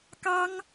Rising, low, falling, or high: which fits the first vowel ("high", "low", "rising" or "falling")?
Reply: high